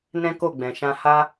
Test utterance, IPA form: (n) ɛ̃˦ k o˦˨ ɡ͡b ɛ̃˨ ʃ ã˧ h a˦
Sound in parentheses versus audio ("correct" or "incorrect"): correct